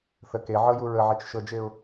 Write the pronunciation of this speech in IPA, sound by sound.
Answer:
θ ə k e ʕ ɤ j u ɹ ə ʕ ɛ t͡ʃ ʃ ɤ d͡ʒ e ʊ̯

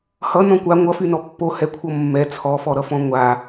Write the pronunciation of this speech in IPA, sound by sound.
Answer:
h ʌ n ɔ̃ kʷ a ŋʷ ʌ f y n ɔ pː o h ɛ kʷʰ ʌ mː ɛ t͡sʰ ɔ f ɔ ɾ ʌ f ɔ̃ ŋʷ a

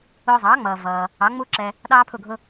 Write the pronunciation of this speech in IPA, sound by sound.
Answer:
ʊː˧ zˤ ɑː˩˥ ŋ͡m ʌː˩ v ʌː˩ | ɑ˩˥ ŋ͡m u˥ ǁ ɛ˧ | ɗ ɑː˥ pʰ ʊ˥˩ ɡʱ ʊ˥

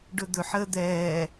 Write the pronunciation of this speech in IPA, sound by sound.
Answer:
ɖ ɵ d̪ ɵ ħ əː d̪ ɛː

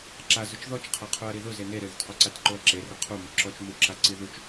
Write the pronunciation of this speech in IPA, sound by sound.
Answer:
ǁ a z ʊ t͡ʃ ð ɔ t͡ʃ qʰ a qʰ u ɐ̯ ɾ i ð ʊ z e n e ɾ ɪ ð ʊ t q o ǀ a t ǃ o ɐ̯ ǁ e r ɪ qʰ u m o ǁ ɔ t͡ʃ m u ǁ a ǀ i ð u t͡ʃ

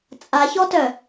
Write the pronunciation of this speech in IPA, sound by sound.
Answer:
t͡sʼ a ç ɔ t œ

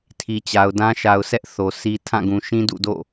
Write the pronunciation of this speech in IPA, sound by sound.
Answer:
tʰ i˨ t͡ɕ a˨ ʊ̯ d ã˦ ʃ a˨ ʊ̯ s ɛ˦ ʔ θ o˨ sʰ i˦ tʰ ã˦˨ ɡ ũ˨ ʃ ĩ˦ d ṵ˦˨ d o̰˦˨

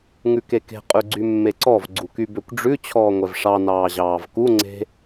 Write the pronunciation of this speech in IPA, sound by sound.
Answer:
ŋ ʉ k e k e̤ qʼ ʉ ɡ͡ǀ y mː e ǀ ɔ v ɡ͡ǀ u k y b ø kʷ ɖ͡ʐ ʉ t͡ɕʰ ɔː ŋʷ ɛ v ʂ ɑ n ɑː ʑ ɑː v k u ŋ͡ǀ e̤

